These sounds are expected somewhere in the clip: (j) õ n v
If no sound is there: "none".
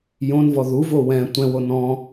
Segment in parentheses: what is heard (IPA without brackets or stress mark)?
j